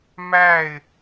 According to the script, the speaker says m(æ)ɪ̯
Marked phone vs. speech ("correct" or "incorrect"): correct